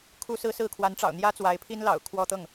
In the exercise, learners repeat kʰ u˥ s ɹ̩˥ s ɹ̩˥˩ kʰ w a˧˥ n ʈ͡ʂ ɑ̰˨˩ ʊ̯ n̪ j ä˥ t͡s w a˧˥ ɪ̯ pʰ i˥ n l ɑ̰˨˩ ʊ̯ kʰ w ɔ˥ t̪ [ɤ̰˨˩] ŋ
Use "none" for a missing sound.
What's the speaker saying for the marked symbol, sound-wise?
ɤ˥˩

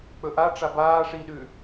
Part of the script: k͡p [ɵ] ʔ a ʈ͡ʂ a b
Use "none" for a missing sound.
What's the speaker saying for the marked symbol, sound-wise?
ɵ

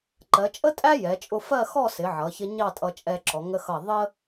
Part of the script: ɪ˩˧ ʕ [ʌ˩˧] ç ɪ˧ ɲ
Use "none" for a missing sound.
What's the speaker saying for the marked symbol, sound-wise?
ʌ˩˧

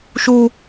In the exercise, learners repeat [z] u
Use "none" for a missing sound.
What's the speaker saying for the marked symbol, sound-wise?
ʃ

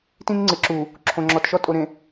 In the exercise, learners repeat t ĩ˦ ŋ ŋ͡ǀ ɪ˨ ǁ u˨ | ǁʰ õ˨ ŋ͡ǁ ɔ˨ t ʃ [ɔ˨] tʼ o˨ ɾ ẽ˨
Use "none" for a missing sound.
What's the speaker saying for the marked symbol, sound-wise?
ɔ˦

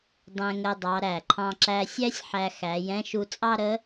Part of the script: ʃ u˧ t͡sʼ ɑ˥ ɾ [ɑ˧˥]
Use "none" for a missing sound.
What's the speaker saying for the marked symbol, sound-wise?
ə˧˥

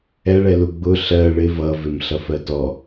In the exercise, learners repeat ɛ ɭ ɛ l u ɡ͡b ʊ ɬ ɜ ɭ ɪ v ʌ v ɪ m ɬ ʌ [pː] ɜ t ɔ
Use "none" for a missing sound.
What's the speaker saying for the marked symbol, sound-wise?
f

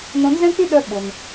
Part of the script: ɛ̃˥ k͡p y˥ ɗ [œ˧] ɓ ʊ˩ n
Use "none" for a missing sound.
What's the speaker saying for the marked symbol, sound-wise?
œ˧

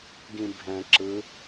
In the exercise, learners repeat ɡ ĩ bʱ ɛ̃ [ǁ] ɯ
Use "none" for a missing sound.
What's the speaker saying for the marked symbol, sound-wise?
ǁ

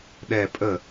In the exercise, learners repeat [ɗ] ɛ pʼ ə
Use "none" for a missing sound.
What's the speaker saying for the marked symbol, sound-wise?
ɗ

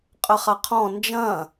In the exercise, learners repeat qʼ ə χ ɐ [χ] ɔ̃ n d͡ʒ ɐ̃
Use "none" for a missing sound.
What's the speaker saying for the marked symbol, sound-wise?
qʰ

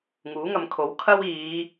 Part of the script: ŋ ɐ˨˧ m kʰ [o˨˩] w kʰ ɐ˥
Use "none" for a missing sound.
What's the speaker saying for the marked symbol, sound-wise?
o˨˥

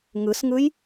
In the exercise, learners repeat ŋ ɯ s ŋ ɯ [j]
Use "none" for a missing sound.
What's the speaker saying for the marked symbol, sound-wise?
j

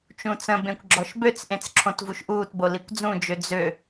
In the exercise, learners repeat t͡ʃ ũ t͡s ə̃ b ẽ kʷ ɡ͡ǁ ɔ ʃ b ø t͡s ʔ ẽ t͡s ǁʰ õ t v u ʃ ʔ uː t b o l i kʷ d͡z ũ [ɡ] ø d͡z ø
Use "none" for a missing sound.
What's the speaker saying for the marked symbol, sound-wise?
d͡ʒ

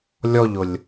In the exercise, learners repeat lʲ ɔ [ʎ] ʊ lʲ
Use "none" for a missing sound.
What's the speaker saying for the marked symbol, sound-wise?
ʎ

